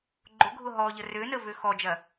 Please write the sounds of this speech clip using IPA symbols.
ɡ͡ǃ ʊ ɡʱ ʊ ɦ ɔ ʎ ə r ø n ə v ø x ɔ d͡ʒ ɐ

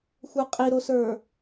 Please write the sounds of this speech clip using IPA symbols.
xʷ ə˞ qʼ i ɾ o s ə˞

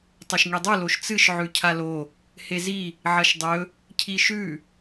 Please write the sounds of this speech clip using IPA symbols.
tˤ ɵ ʃ ŋ i dˤ ɨ l o ʃ t͡s ɨ ʃ ʕ ʉ cʰ a l o | h e z i | ʕ ɐ ʃ dˤ ɵ | cʰ i ʃ ʉ

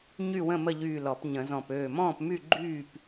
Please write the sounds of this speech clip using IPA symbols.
ɲ y˥˨ w ə̃˥˨ m ə˥˨ ʎ yː˧˩ l ɔ˨˩˦ p ɲ ə̃˨˩˦ z ɔ̃˧˩ p øː˧˩ m ɔ̃ː˥˨ p m y˥˨ ɡ͡ǃ yː˥˨ p

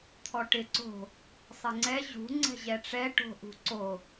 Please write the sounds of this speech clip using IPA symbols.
t̪ʰ ɔ ʈ ɪ ǀ o̤ | sˤ ɪ ŋ͡ǀ ɛ ʑ ṳ ŋ͡ǀ ɛ̤ ʑ ɛ ʈ͡ʂ ɛ ʈ o̤ ʔ ṳ ǀ o

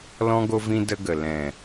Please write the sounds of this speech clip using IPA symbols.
l ɔ̃˦ ɡ o˦ v ĩ˦ d ə˦ ɡ ə˨ l ɛ̃˨

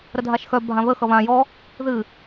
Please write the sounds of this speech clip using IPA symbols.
ɾ ə dʱ a ʃ x œ bʱ ã β ə x ʌ β ã j ɔ | ð ɨ

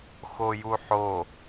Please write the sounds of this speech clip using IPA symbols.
x o j u ħ o

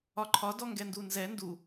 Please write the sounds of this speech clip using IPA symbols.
ɒ ǃʰ ɒ d ɔ ŋ ɡ ɛ n d u n z ɛ n d u

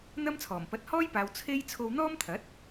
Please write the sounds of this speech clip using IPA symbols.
n̪ ɐ˥ m t͡sʰ ɔː˨˩ m p ɐ˨˥ t̚ h ɔː˥ j p aː˨ w t͡sʰ e˥ j t͡sʰ o˧ w n̪ ɔː˥ m t̪ʰ ɐ˨˥ t̚

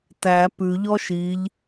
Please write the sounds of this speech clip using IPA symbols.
t æ p ʉ ʎ ɔ ʃ i ʎ

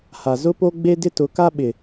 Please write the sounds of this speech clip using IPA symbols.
h a˨ z ʊ˦ p o˦ ɡ͡b e˦ d ɪ˦ t ʊ˨˦ k a˦ ɓ ɪ˨

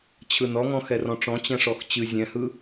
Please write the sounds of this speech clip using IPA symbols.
t͡ɕʰ ɯ n ɔ ŋ ɔ̃ x ɛ r ɔ̃ ʈ͡ʂ ɔ̃ t͡ɕ ɛ̃ ʂ ɔ x t͡ɕ ɨ zʲ ɛ̃ h ɯ

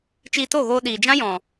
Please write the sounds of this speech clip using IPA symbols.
t͡ʃ iː˧ t o˦˨ ɣ oː˧ ɗ iː˨ d͡ʒ ã˦ j ɔ̃˨

